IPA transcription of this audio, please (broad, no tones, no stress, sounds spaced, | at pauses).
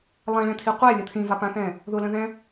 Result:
lˠ ɛ̃ ɭ ɛ̃ t̪ʰ i qʷ ɛ lʲ ə t̪ʰ ĩ v a p ã θ ɛ̃ | ð ʊ l ə̃ ð ɛ̃